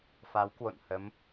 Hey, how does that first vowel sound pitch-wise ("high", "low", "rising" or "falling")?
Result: rising